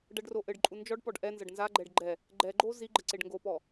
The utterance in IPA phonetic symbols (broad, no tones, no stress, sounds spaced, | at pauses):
ɖ ɐ ɖ r o ʔ ɘ ɖ ǃʼ u n d͡ʒ ɔ ɖ p ɔ ɖ ʔ ɛ n z ɐ ɖ n z a ɡ͡ǃ ɛ ɖ ɡ͡ǃ ɛ | ɡ͡ǃ ɛ ɡ͡ǃ o z i ɡ͡ǃ ɘ ǀ e ɖ ŋ ɡ o p ɔ